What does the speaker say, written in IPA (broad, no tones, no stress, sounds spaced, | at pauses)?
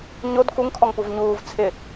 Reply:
ɲ o d k u ŋ kʰ ɔ ŋ p u v ɲ uː v t͡sʰ ɪ